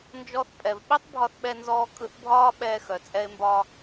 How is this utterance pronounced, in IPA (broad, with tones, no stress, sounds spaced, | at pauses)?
n d͡ʒ ɔ˧ θ pʼ ɛ˩ v ɓ i˥ tˤ bʱ ɒ˧ θ ɓ ɛ˧ n z ɔː˧ kʼ ɯ˧ θ bʱ ɒː˥ ɓ ɛː˧ x œ˩ t͡sʼ ɛ˧ e̯ m b ɒː˧